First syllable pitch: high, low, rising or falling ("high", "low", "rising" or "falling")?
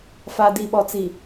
low